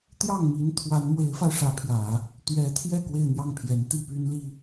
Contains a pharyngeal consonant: no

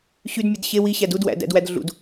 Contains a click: no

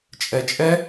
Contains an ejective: yes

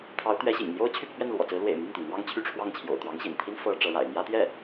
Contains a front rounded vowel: yes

